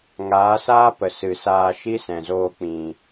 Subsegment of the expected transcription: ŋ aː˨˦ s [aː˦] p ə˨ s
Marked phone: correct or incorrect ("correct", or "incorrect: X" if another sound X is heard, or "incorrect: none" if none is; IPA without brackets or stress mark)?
correct